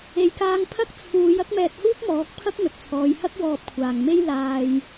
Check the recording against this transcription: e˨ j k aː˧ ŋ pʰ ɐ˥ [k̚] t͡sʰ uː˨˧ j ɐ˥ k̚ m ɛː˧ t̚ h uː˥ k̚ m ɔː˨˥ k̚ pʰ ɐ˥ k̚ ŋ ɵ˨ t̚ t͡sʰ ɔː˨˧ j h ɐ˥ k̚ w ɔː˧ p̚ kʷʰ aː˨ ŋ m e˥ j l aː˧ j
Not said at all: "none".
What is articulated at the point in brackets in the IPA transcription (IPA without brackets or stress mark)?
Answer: k̚